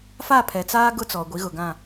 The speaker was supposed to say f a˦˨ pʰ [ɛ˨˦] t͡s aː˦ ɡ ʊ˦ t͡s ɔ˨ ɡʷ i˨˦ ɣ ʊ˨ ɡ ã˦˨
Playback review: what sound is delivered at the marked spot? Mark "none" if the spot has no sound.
ɛ˨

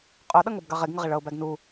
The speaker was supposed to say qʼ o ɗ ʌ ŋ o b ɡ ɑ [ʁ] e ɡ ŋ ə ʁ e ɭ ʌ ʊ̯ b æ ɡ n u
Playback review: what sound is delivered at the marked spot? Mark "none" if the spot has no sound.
ʁ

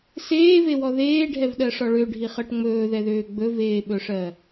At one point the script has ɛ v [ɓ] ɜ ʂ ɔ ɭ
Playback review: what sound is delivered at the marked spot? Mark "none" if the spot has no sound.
ɗ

